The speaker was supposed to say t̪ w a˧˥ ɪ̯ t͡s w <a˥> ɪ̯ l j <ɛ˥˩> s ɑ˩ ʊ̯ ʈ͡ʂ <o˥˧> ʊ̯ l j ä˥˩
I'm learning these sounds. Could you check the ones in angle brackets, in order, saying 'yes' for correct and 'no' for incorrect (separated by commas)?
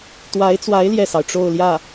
no, yes, yes